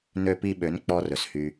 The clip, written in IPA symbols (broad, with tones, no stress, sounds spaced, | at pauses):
n ø˧ p i˧ ɓ ø˨˦ n k͡p ɔ˦ r ɵ˨ s h y˧